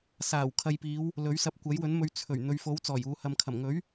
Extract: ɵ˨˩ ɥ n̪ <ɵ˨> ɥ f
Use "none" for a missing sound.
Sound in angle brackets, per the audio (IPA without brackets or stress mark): ɵ˨